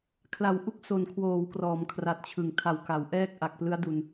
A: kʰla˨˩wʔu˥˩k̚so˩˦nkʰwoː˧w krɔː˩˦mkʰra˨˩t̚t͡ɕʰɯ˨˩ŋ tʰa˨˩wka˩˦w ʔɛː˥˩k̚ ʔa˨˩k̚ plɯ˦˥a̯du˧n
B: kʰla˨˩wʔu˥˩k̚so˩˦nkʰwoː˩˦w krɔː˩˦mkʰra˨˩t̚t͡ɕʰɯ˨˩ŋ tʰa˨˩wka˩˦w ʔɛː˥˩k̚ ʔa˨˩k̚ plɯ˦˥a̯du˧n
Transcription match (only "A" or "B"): B